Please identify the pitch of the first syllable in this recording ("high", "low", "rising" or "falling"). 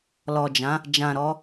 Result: low